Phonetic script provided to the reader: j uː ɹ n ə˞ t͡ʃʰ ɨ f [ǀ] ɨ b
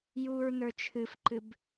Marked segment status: incorrect: ǃ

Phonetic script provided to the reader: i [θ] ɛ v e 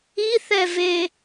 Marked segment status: correct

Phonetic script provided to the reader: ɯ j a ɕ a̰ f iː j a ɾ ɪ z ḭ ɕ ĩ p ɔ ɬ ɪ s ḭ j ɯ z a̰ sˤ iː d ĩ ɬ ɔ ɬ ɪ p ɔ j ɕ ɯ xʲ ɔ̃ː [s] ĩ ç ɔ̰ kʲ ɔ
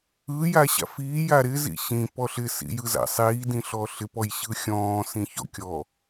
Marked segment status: correct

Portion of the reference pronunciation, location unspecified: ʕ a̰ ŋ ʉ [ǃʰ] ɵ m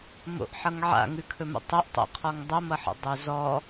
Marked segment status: incorrect: kʰ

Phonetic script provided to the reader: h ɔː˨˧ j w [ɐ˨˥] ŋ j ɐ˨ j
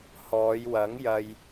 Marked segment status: correct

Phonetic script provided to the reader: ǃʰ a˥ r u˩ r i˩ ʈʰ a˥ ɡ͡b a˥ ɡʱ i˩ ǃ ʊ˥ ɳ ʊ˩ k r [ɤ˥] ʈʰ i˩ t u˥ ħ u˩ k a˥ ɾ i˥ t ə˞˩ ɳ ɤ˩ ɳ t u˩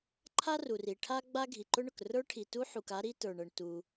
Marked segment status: incorrect: ə˞˥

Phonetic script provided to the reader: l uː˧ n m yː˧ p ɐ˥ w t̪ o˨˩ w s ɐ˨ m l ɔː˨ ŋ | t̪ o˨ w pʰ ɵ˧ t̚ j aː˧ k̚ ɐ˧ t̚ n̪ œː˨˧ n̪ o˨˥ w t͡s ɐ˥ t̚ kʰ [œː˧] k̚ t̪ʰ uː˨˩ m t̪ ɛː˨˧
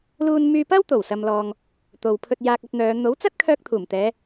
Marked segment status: correct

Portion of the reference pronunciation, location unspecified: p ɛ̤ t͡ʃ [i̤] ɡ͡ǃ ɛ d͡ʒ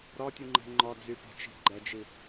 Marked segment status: correct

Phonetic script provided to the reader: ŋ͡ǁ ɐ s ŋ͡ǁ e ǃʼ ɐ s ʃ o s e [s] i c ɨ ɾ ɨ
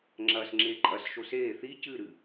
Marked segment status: incorrect: θ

